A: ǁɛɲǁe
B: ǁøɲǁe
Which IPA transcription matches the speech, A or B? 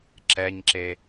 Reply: A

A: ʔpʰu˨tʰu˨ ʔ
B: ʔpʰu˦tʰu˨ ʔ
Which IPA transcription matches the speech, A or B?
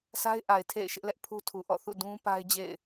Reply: B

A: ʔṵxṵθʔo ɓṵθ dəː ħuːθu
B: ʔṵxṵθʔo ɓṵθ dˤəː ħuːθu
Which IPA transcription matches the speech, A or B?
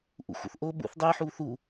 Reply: B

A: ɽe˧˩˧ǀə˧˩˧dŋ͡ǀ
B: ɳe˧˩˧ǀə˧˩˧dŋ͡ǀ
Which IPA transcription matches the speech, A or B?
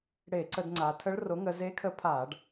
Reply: A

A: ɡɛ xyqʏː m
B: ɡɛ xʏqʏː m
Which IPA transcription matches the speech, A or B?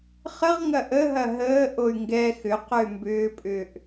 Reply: B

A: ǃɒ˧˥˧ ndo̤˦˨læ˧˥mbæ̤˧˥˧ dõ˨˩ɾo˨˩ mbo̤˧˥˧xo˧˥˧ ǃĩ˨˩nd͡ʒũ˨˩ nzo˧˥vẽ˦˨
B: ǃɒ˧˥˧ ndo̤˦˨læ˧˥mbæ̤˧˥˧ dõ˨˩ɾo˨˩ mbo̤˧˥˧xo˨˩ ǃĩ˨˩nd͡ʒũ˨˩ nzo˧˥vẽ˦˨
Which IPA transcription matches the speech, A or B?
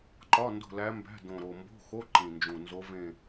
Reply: A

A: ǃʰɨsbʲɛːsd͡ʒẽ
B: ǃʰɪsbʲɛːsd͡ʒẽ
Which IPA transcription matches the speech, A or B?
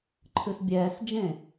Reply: A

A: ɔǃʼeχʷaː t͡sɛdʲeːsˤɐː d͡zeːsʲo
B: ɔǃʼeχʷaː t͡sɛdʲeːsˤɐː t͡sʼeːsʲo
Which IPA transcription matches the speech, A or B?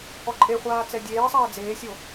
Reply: A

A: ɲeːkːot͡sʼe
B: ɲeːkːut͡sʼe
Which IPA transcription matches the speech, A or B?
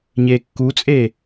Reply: B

